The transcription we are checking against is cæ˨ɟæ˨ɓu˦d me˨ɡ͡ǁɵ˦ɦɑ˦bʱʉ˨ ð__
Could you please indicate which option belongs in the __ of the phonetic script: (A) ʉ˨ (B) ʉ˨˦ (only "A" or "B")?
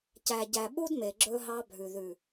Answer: A